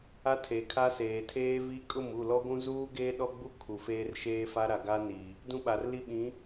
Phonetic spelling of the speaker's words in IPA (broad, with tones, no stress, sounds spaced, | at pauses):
a˦ tʰ e˨ kʰ a˦ s eː˨ tʰ eː˦ v i˦ kʼ ʊ˦˨ m u˦˨ l ɔ˦ ɡʷ ũ˦ z uː˦ ɡ eː˦ ɗ ɔ˦ ɡ͡b u˦ kʰ u˨ f eː˦ r ʃ eː˦ f a˦ ɾ a˨ ɡ a˦ n i˨ | d ũ˦ ɓ a˨ r l i˦ ɓ ĩ˨˦